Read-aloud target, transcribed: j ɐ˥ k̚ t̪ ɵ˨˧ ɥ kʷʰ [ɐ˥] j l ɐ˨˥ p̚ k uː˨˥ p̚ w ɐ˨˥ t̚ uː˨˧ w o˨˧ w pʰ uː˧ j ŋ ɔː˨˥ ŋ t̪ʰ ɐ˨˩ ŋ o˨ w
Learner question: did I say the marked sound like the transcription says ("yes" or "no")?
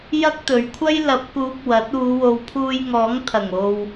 yes